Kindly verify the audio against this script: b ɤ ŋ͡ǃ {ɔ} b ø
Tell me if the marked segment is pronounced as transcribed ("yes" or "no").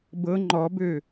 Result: yes